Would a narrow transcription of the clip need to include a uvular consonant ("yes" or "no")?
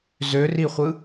yes